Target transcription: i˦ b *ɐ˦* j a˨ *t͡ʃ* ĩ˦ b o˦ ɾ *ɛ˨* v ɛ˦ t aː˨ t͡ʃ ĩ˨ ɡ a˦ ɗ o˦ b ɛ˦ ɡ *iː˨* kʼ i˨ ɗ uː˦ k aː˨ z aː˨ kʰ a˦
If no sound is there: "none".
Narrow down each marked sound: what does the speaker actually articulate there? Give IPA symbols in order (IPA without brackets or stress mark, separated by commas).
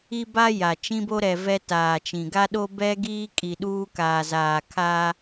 a˦, t͡ʃ, ɛ˨, iː˦